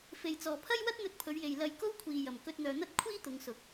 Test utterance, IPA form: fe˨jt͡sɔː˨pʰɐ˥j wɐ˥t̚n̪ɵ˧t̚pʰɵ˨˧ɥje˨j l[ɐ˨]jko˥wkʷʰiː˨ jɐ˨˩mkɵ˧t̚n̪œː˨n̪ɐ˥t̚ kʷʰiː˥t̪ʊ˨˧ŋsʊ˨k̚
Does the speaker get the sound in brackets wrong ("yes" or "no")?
yes